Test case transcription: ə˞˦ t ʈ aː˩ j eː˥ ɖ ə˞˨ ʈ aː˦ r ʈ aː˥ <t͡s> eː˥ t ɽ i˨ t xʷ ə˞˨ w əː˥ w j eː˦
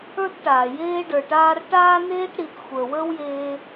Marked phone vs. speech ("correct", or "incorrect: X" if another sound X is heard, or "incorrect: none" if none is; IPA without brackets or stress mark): incorrect: n